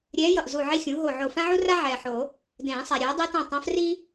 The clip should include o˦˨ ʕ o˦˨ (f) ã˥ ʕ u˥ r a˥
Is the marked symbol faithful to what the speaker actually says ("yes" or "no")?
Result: yes